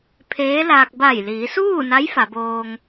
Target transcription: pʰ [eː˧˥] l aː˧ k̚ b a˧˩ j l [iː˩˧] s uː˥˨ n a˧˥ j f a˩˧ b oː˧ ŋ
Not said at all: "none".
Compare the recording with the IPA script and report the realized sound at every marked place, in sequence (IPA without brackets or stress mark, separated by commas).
eː˧˥, iː˩˧